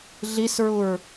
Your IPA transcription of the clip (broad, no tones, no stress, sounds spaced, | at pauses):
ɮ i s ɹ u ɹ